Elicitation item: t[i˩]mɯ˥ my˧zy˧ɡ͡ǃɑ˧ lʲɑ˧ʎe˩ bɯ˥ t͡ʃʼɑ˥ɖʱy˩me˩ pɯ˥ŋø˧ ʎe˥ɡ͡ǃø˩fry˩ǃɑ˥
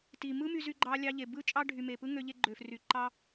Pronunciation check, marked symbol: correct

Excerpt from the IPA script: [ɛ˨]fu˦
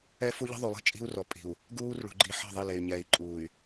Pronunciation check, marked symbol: incorrect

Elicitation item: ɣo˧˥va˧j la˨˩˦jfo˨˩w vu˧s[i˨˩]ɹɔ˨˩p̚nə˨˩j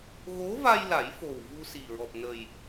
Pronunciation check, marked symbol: correct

